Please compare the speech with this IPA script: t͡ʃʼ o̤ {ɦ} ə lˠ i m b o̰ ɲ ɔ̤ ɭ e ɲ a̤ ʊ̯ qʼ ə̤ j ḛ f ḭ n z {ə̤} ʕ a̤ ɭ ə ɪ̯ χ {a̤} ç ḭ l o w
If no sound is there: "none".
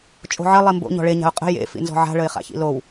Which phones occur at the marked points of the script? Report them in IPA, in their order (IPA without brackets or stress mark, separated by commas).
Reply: ʕ, ɔ̤, a̰